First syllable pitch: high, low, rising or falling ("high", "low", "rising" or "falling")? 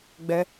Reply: high